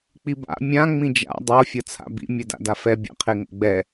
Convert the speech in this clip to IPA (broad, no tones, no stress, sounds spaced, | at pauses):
k͡p i b a̰ mʲ ã ŋ͡m ĩ d͡ʒ a̰ dˤ o fʲ ʌ t͡sʰ a̰ b ḭ mʲ ɛ d a̰ d a f ɛ bʲ a̰ qʰ e ŋ o̰ ɡ͡b ɛ